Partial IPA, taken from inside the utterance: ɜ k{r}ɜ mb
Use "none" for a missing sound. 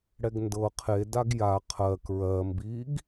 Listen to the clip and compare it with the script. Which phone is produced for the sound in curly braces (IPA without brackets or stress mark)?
ɹ